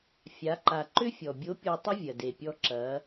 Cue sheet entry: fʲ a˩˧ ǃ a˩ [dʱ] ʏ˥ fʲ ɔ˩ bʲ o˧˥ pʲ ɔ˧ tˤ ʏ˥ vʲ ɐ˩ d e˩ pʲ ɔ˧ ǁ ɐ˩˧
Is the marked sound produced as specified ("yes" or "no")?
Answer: no